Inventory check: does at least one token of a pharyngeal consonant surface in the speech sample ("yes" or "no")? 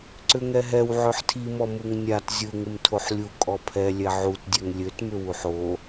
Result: yes